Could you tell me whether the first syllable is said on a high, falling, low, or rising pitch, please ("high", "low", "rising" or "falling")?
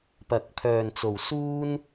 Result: low